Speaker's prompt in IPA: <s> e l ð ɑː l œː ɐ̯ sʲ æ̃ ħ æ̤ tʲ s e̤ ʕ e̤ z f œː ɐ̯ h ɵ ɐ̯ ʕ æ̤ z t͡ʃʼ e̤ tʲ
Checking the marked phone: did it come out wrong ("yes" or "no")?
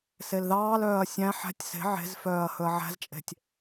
no